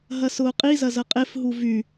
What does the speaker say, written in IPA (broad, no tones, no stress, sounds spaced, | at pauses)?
ɦ ɐ s ʊː qʼ i z ɐ z ɐ qʼ e f ɦ u v y